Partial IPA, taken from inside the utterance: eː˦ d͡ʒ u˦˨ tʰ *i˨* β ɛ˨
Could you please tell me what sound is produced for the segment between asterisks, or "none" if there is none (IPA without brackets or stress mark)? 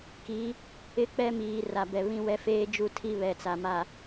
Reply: i˦